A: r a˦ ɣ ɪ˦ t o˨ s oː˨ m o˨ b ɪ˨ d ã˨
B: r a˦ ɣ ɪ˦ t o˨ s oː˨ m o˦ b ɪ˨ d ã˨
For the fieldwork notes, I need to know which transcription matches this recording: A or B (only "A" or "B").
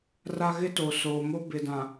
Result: B